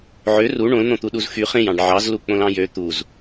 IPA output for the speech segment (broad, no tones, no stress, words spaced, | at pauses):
ʕø ru ɳõln̪õt̪uɗuz xy χẽjɑ̃ɖ ʕɑzlu k͡põlɑ̃jø t̪uz